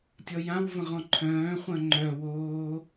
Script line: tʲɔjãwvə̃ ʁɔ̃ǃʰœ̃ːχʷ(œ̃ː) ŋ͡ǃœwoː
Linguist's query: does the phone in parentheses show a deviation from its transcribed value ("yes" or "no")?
yes